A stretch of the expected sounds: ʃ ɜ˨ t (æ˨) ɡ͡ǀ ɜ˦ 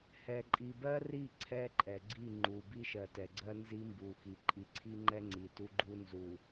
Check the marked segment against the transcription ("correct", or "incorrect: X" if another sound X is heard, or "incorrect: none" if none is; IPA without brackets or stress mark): incorrect: ɛ˨